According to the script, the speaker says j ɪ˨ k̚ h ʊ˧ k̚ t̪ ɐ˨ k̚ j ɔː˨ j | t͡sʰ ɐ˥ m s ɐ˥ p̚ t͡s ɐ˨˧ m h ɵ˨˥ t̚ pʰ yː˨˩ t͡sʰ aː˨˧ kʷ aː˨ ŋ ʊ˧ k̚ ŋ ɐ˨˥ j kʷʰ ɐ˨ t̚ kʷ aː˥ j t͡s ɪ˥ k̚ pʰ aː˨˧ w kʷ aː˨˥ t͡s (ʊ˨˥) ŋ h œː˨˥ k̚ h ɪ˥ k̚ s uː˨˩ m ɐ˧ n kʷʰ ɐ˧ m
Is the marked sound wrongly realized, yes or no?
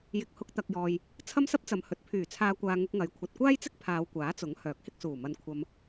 no